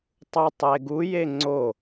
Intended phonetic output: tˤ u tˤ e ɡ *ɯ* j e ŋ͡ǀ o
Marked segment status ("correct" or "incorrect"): incorrect